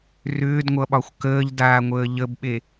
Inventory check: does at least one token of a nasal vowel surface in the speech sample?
no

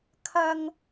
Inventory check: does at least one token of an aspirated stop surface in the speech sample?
yes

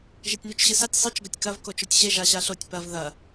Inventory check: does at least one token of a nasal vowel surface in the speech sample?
no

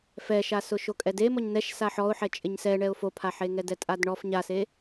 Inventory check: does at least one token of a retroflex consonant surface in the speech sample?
yes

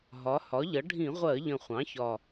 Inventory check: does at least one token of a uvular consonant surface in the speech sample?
yes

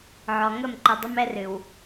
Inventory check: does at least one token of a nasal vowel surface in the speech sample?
no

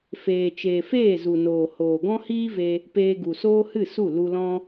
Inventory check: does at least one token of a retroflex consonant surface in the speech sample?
no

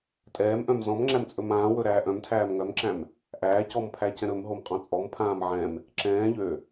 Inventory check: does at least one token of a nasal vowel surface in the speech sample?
yes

